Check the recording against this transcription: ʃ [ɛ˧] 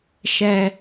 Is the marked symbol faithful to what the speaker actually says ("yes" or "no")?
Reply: yes